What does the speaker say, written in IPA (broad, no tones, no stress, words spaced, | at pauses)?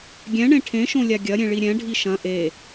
ɡʲɛ̃ɳẽ ʈʰẽʃõlʲa ɡʲɐɾʲẽɭi ɾʲɛ̃ɖʱi ʃɐ̃ ʔe